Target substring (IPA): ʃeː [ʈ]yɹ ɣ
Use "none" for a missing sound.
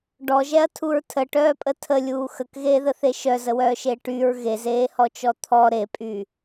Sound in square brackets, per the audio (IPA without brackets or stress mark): ʈ